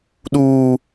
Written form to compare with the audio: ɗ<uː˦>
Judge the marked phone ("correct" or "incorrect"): correct